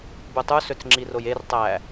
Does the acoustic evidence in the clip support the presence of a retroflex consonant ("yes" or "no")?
no